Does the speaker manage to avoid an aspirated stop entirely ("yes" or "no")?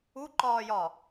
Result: yes